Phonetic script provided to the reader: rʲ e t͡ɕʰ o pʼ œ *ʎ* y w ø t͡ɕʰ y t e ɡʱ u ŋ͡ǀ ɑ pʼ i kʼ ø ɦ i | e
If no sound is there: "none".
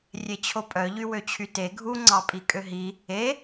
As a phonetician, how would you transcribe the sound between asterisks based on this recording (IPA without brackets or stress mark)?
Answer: ʎ